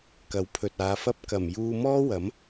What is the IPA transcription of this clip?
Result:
kɐ˨˥wpʰɵ˨t̚aː˨˧fɐ˥p̚ kɐ˨˩mjuː˧ mɔː˥wɐ˨˥m

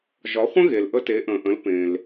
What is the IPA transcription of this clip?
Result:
ʒɒ˩˥χʷə̃˥ɣe˩l ʔə˧te˩˥ʔə̃ː˩ʔə̃˩˥l pẽ˩l

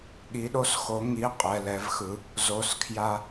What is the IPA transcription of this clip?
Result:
ɠi˧˥ɗo˥sxo˧˥ ŋi˧˥ qʼɛ˧˥˧lɛ˧˥vxɯ˧˥ | zo˧˥˧skʰja˥

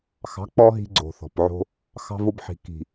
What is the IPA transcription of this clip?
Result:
xɑ̤˨˦k͡pɔ˧ ɦi̤˧ɡ͡ǀo̤˨θɔ̤˨pʕo̤˧ | xɑ̤˧vo˧bħi̤˨ ki̤˨

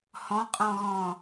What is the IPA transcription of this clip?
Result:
hɔ̃qʼɔ̃ɣɔ̃

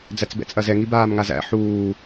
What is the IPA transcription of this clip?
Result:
d͡zæt͡sbɛ̰t͡sʼɐzɛ ŋibaːmŋazæ̰ ħuː

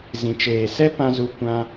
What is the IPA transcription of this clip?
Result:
zĩ˨t͡ʃeː˨ sɛ˦pã˧ zu˦kʷã˦

